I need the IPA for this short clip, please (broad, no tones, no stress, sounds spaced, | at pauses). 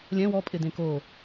lʲ ɛ̃ w ɔ pʼ ɪ d ẽ k o